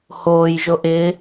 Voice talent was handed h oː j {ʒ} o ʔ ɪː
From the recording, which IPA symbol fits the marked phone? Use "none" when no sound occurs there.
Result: ʒ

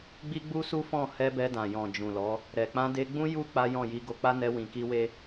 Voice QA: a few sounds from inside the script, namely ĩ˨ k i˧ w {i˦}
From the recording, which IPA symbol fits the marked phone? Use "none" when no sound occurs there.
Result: e˦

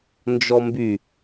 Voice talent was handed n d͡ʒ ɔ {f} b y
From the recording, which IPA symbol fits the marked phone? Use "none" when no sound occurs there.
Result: m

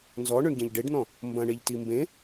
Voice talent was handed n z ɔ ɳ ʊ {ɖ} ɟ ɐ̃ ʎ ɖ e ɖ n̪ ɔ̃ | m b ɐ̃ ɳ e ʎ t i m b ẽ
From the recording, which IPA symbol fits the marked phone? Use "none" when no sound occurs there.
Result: ɳ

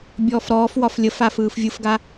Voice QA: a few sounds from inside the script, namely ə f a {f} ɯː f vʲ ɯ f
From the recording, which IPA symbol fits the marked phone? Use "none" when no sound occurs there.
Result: f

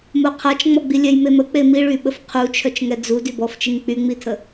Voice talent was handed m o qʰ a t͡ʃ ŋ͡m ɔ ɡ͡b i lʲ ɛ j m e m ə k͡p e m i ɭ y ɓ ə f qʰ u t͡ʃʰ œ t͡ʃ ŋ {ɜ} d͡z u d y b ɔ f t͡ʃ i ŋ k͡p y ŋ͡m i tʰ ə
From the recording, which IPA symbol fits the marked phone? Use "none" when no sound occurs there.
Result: ɛ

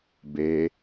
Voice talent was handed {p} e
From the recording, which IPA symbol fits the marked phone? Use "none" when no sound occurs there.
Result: b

